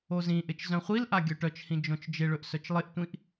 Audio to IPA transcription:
o z ĩ ʔ ɪ t͡ʃ z œ̃ χʷ i l ʔ a ɡʲ œ ʈ œ t͡ʃ h ĩ d͡ʒ õ t͡ʃ d͡ʒ ɪ ɭ ɵ ʔ s œ t͡ʃ lˠ ɪ ʔ tʷ ĩ ʔ

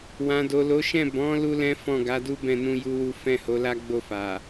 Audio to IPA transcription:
w ã˨ d o˨ l o˨˦ ʃ ɛ̃˦˨ b ɔ̃˨˦ l u˦ l ɛ̃˦ f ɔ̃˦˨ ɡ a˨˦ d u˦ b ɛ̃˦˨ n ũ˧ j u˦ w u˦ f ɛ̃˦˨ h o˨˦ l a˦ ɡ͡b o˦˨ f a˨

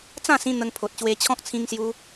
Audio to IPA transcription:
t͡s ã˥˧ s ĩ˧ n̪ ə˧ ŋ pʰ o˨ t̚ ɕ w e˧ t͡ɕʰ ɔ̃˦ k̚ t͡sʰ ĩ˧ ŋ s j u˧

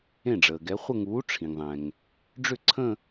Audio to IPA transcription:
ẽ˥˩ ɖ͡ʐ əː˩ ɡ ɛ˨˥ χʷ ə˥˧ ŋ uː˨˥ ʈ͡ʂʰ ĩ˩ ŋ ðˤ ɛ̃˩ ŋ | ɖ͡ʐ ʏ˥˩ ǀʰ ə̃˥˧

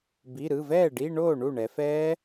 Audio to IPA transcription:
b i˩˧˩ ɾ ɯ˩˧˩ v ɛː˥˩ ɖ i˧˥˧ ɳ oː˥˩ ɳ u˥˩ ɳ ɛ˩˧ f ɛː˦˥

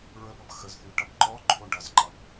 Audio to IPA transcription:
ɹ ə b ʌ b x ə z θ y ʈ ʌ b ǃ ɔ ǃʰ o ɳ ɖ ʌ z ǃ ʌ b

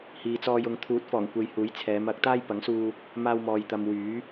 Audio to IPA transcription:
h iː˨ t͡s ɔː˧ j ʊ˨˧ ŋ t̪ʰ uː˨˥ t̚ f ɔː˨˩ ŋ kʷ e˨ j h uː˨˥ j t͡sʰ ɛː˨˧ m ɐ˨˥ k̚ t̪ aː˥ j p ɐ˨˥ ŋ s uː˧ | m aː˧ w m ɔː˨ j t̪ ɐ˨ m w yː˨˥

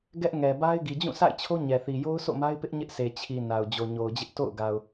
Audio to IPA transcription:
ɡ ɛ˦ ʔ ŋ ɛ˨ b a˦ ɪ̯ ɡ i˨ d͡ʑ ũ˦˨ sʰ a̰˦˨ ɪ̯ t͡ɕʰ o˦ ɲ ɛ˨ θ i˨ j o˦ ʊ̯ sʰ o̰˦˨ m a˦ ɪ̯ p ɪ˦ ʔ ɲ ɪ˦ ʔ s e˨ t͡ɕʰ i˨ n a˨ ʊ̯ d͡ʑ o˨ ɲ o˨ ʊ̯ d͡ʑ ɪ˦ ʔ t o̰˦˨ ʊ̯ ɡ a˨ ʊ̯

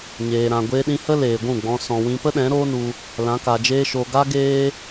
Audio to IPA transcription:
ɲ eː˨ ɾ ã˨ ɡʷ eː˧ ɗ ĩ˧ h ə˦ l eː˨ ɡʷ ũ˦˨ ɡ͡b ɔ̃˧ s ɔ̃˨ w ĩ˧ p ə˦ ɗ ɛ̃˨˦ ɾ oː˦ n u˧ | l ã˨˦ k a˨ d͡ʒ eː˦ ʃ oː˧ ɡ a˦ ɡ eː˦

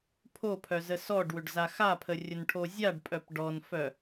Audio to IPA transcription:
pʰ o pʰ œ z ə s ɔ ɖ w ʏ ɖ z a x a pʰ ə rʲ ə n ʈʰ o zʲ a ɖ pʼ œ p ɖ ɔ n f œ

